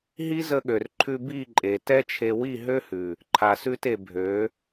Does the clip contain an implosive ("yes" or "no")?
yes